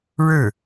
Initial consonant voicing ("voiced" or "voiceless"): voiced